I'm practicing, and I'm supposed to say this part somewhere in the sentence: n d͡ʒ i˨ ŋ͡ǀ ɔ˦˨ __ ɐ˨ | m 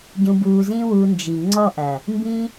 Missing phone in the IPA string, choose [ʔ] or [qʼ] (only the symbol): ʔ